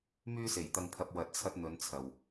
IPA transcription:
m yː˧ s e˨˩ j t̪ ɐ˨ ŋ pʰ ɐ˨ p̚ w ɐ˨˥ t̚ t͡sʰ ɐ˧ t̚ n̪ ɵ˨˧ n t͡sʰ ɐ˨ w

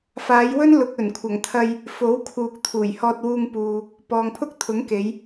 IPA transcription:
f aː˨˧ j w ɵ˥ n l ʊ˨ k̚ ɵ˨˩ n kʷʰ ɐ˨˩ ŋ t̪ʰ ɐ˧ j | f o˨˥ w kʰ uː˨ k̚ t̪ʰ uː˨˩ j h ɔː˧ t̚ w uː˧ ŋ p uː˨ | p ɔː˨ ŋ pʰ ʊ˥ k̚ t̪ʰ ʊ˨˥ ŋ k e˨˧ j

